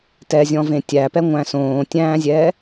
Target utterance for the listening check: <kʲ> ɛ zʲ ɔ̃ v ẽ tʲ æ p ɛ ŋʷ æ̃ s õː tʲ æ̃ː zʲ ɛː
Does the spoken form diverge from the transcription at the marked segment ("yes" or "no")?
yes